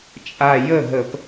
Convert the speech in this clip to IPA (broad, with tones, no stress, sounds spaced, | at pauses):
t͡ʃʼ a˧˩ j ə˥˩ ɦ ə˧˩˧ p